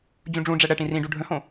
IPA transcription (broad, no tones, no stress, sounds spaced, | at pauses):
d͡ʑ ũ ɖ͡ʐ ũ ɖ͡ʐ ɛ ɽ ɛ ʈ ĩ r ĩ ɖ u ɖʱ ə̃ h õ